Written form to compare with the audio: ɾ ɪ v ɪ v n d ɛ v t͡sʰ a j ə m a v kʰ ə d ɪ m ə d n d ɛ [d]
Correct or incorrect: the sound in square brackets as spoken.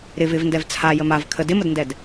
correct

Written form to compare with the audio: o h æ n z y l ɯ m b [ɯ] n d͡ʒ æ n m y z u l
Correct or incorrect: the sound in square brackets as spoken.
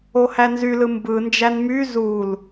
correct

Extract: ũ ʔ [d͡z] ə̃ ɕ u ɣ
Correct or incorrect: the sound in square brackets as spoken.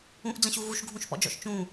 correct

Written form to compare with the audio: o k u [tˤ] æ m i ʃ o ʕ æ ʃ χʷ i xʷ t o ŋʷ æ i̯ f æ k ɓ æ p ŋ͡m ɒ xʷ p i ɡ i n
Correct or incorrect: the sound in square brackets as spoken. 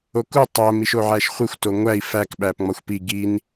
correct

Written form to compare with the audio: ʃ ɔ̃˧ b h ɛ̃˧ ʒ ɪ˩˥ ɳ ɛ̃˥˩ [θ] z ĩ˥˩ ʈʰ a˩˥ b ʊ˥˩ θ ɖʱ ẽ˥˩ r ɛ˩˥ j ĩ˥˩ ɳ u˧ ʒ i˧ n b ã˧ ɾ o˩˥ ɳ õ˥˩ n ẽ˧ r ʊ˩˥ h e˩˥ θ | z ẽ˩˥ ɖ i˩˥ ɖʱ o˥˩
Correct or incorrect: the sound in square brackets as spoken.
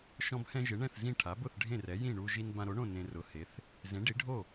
correct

